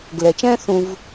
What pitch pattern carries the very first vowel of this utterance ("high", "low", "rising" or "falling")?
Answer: low